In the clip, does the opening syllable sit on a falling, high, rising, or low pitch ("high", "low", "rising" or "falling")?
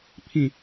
low